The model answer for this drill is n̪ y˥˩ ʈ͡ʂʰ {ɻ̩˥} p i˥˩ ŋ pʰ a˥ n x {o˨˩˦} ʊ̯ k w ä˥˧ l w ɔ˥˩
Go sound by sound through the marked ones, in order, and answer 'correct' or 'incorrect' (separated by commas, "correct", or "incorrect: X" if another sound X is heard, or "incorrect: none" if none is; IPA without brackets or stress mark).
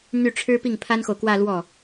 correct, incorrect: o˨